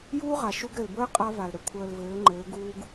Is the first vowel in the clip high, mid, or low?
high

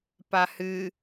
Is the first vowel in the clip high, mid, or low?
low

